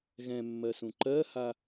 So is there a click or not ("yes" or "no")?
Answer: yes